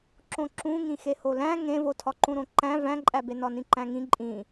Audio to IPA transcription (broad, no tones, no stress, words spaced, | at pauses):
ǁõǁũ ŋĩxeholæ̃ ŋẽvotʰɒ ǃũɾõǃæ̃ væ̃ǃʼæbe nɒnĩǃæ̃ŋĩ ǃʼĩ